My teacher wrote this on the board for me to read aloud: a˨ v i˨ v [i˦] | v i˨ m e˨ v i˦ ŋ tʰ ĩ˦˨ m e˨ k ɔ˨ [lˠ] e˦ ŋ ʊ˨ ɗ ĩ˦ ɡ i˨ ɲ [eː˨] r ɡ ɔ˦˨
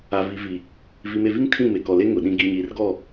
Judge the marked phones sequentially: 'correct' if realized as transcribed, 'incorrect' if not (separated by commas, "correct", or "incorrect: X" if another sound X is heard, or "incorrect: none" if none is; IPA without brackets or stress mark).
incorrect: i˨, incorrect: l, incorrect: iː˨